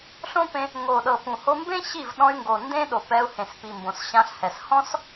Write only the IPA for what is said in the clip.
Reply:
ɬ õ˦ p ẽ˧ | ŋ o˨ ɗ ɤ˨ p ũ˨ h o˧ m b ẽ˦ ɕ i˦˨ v ɗ ɔ̃˧ y̯ ŋ ɡ o˨ n d ẽ˦ ɗ o˨ p ɛ˧ u̯ h ẽ˨ s p i˨ m b õ˨ s ɕ ã˧ ɬ h ɛ˨ s h ɔ̃˦ s

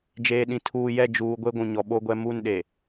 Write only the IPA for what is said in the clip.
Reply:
d͡ʒ eː˨ ɗ ĩ˨ tʰ uː˨ j ɛ˦˨ d͡ʒ uː˨ ɡʷ e˦ ɡʷ ũ˨ ɲ ɔ˨ ɓ o˦ ɡʷ ɛ˦ m u˦˨ n ɗ e˨

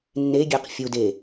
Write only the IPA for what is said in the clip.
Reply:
nː e ɡʲ e q fʲ u d e

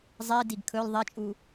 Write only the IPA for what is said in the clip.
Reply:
zˤ i d i ɡ kʰ ɵ l ðˤ e t͡ʃʼ u

